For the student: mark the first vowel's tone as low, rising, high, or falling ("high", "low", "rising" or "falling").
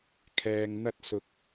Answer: low